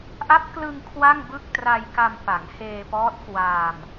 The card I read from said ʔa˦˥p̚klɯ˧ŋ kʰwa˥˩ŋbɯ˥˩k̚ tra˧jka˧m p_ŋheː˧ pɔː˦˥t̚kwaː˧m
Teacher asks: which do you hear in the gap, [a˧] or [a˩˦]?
a˩˦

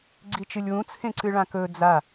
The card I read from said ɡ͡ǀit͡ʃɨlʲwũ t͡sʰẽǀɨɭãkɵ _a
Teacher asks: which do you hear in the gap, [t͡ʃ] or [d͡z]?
d͡z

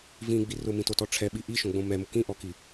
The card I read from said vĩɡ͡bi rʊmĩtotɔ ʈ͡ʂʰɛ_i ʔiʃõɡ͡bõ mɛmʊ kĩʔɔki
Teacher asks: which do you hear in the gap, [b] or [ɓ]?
ɓ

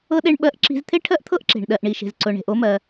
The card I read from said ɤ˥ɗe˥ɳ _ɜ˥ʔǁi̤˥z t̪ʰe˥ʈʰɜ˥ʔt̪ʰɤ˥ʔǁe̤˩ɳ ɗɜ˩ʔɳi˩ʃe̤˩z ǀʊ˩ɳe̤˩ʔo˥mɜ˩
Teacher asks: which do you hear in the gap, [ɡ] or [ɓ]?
ɓ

